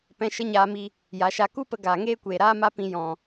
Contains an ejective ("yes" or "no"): no